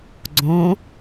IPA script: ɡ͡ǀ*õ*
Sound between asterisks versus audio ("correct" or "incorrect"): correct